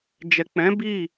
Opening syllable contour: low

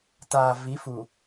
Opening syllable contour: low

